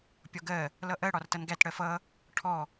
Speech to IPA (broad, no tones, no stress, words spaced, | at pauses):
pʲɒɡɜ | lʌʔɜ ɽɒrtʌnɡæt ɽɜfʌ | ʈʰɔ